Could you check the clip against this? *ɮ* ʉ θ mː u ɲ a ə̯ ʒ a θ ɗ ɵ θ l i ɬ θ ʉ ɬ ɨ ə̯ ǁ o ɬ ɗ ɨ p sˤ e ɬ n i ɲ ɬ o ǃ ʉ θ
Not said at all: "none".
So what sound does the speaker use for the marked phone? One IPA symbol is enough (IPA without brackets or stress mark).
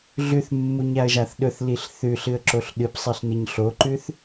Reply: ɮ